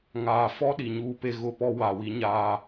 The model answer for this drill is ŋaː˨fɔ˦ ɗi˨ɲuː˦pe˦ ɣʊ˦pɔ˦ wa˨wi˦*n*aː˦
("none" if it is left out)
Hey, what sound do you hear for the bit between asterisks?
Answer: ɲ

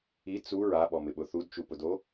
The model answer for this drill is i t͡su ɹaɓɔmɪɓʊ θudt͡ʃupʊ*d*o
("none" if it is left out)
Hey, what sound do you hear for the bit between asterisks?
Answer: d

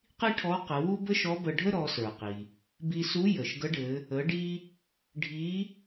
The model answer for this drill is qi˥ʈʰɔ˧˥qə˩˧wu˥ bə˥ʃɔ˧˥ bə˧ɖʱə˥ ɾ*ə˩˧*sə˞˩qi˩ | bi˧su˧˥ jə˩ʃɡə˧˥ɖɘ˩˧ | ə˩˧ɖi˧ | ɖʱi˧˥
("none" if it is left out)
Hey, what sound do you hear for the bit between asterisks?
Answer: ɔ˩˧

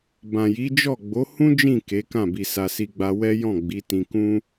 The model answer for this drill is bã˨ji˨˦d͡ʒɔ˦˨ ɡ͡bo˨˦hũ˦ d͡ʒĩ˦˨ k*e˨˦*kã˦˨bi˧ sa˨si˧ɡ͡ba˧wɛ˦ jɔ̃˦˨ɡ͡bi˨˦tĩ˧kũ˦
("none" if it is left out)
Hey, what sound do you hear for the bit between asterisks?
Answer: e˨˦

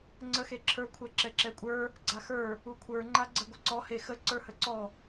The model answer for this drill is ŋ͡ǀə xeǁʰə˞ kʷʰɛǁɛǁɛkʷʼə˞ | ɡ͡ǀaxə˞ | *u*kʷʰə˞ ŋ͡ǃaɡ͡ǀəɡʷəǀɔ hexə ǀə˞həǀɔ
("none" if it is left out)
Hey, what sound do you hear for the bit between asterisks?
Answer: u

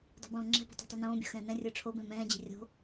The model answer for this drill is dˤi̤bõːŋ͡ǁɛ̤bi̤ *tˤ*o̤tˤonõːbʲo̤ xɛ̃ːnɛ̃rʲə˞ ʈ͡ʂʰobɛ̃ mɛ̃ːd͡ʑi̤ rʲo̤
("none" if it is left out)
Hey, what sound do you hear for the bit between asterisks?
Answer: tˤ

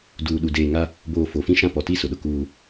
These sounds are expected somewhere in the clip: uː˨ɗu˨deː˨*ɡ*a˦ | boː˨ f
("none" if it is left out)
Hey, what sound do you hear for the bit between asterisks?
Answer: ŋ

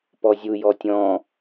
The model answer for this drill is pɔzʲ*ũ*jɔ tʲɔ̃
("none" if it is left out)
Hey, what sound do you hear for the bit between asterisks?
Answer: u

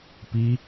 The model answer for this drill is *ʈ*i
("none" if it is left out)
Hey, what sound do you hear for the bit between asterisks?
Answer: p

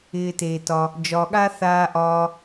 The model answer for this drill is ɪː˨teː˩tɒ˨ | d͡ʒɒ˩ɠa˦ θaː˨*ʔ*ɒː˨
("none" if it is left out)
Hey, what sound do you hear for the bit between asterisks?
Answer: ʔ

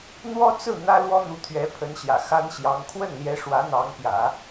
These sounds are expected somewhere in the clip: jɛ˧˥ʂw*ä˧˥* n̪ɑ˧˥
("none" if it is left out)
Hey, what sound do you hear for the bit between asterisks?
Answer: ä˧˥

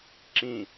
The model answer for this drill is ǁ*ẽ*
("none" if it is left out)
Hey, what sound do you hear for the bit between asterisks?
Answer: ĩ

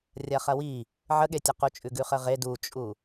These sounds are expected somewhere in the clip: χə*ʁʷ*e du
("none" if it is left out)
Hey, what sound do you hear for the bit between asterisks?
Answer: ʁ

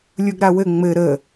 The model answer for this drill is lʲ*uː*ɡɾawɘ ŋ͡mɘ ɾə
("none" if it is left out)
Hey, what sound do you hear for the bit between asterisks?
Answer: u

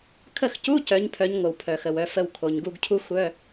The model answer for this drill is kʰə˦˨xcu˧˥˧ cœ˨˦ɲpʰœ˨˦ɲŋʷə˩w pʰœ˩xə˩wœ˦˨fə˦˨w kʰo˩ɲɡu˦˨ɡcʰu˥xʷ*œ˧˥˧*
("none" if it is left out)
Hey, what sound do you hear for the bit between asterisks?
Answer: œ˧˥˧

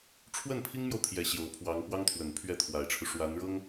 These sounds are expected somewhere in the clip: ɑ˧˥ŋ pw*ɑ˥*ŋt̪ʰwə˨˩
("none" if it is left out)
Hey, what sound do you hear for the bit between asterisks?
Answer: ɑ˥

